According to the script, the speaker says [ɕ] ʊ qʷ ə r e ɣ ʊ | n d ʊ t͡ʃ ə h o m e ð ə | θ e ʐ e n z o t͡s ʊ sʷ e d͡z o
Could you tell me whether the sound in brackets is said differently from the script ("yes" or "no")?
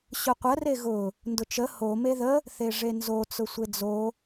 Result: no